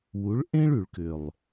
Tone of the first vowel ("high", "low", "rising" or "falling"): rising